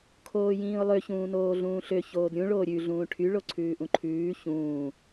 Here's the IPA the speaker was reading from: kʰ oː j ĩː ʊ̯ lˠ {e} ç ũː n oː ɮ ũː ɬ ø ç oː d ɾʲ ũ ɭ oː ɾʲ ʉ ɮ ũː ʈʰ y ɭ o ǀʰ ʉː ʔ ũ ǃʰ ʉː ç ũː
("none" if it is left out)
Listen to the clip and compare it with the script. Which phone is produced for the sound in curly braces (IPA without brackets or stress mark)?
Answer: ø